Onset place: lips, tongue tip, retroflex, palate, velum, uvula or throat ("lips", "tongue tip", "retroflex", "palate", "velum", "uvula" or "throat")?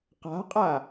uvula